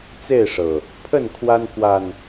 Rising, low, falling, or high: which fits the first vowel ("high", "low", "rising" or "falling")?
falling